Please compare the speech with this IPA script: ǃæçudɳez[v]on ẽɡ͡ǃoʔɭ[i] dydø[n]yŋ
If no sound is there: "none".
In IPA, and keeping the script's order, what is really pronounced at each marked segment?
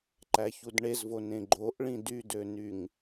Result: v, ĩ, n

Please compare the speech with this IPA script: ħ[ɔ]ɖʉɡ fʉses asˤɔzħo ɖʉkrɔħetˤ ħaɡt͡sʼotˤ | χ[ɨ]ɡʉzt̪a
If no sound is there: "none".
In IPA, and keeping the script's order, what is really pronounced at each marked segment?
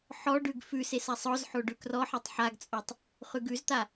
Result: ɔ, ʉ

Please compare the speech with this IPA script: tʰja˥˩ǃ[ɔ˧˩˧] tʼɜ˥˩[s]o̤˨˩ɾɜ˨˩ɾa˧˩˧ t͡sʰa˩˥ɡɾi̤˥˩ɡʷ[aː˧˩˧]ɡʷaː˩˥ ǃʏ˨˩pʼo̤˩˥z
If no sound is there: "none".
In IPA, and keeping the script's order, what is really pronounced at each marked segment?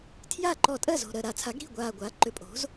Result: ɔ˧˩˧, z, aː˨˩

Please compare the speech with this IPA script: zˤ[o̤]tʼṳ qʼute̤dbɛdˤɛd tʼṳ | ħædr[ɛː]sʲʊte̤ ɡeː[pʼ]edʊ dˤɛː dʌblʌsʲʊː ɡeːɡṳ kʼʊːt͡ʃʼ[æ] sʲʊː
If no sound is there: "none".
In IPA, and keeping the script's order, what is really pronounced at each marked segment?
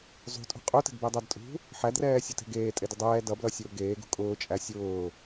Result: ṳ, ɛː, tʼ, æ

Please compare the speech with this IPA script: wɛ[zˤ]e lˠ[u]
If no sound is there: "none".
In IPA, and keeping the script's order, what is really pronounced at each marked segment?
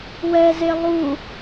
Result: z, u

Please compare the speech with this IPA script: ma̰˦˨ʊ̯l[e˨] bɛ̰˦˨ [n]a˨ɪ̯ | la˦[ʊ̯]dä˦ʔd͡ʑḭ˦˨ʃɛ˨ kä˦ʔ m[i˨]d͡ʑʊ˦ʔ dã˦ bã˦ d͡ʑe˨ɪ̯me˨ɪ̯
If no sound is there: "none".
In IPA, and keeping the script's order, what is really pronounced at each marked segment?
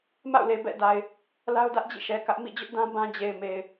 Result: e˨, d, ʊ̯, ḭ˦˨

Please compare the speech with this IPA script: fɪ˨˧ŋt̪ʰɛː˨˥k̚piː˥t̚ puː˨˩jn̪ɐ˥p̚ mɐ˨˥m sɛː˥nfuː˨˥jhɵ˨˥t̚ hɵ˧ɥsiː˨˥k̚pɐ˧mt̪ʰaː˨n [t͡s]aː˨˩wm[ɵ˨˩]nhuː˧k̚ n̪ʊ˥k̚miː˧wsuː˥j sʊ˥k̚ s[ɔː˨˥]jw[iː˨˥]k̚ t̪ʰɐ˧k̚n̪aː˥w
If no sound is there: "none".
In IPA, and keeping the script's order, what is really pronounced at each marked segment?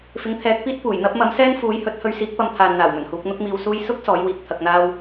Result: n̪, ɵ˨˩, ɔː˨˥, iː˧

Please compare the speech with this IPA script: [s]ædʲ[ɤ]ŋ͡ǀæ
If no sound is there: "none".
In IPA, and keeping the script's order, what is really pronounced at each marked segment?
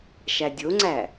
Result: ʃ, o

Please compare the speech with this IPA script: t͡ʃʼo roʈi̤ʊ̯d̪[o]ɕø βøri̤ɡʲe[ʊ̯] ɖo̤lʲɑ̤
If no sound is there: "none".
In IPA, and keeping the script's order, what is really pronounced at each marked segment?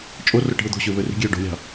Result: o̤, ʊ̯

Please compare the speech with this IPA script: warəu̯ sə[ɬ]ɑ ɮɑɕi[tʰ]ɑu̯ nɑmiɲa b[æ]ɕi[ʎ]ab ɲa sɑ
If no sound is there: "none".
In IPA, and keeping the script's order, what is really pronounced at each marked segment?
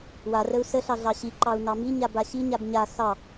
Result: ɬ, ǃ, a, ɲ

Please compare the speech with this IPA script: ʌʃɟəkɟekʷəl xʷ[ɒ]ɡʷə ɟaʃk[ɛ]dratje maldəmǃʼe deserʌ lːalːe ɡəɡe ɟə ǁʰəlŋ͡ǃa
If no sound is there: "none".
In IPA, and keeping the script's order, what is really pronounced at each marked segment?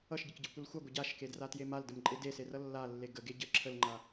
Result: ʌ, e

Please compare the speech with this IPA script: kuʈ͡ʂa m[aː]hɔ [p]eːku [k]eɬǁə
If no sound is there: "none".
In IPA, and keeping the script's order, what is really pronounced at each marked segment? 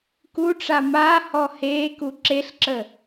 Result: aː, h, ǁ

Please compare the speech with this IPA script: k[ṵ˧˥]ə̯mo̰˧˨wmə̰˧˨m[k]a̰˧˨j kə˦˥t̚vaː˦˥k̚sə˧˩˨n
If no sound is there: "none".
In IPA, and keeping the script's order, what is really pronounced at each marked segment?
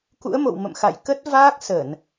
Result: ṵ˧˥, x

